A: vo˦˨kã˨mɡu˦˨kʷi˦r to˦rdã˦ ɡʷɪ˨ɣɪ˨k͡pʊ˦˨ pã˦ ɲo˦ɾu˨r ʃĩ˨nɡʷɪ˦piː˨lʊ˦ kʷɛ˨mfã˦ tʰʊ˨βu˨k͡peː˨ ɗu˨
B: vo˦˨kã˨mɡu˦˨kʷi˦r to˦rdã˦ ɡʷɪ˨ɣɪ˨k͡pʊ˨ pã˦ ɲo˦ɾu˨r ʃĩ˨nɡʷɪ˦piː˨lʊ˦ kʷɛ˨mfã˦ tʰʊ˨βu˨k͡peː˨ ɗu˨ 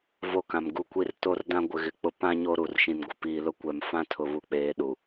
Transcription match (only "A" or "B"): A